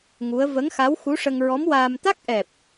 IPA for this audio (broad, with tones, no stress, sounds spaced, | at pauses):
ŋ u˧˥ ə̯ v ə˧˥ ŋ x a˧˥ w x u˧˥ ʂ ə˧ ŋ ɹ ɔ˧˥ m w aː˧ m t̪ a˦˥ k̚ ʔ ɛ˨˩ p̚